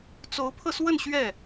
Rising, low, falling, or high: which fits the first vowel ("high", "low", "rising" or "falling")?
rising